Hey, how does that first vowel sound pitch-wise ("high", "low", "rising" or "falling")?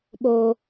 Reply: high